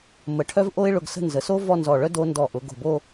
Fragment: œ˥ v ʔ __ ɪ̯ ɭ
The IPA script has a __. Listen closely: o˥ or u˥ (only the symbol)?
o˥